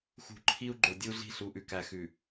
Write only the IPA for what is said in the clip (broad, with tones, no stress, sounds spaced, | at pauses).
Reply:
x ṳ˨ ǃʰ i˦ u̯ ɡ͡ǃ o˨ dʲ u˦ ɮ i̤˦ ɬ u˨ ʔ ʉ˨ k æ˨ x ʉ˨